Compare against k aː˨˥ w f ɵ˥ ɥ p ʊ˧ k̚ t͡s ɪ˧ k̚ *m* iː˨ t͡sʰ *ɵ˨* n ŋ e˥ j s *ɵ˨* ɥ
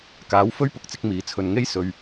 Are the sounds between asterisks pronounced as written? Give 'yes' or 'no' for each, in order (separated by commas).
yes, yes, yes